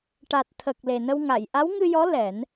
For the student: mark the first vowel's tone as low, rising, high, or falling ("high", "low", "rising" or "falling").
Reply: low